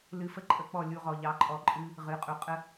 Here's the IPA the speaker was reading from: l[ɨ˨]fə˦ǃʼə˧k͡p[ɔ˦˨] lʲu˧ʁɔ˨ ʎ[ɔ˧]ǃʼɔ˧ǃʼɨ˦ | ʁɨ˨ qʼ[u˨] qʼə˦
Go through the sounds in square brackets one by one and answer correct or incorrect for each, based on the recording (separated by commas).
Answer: incorrect, correct, incorrect, correct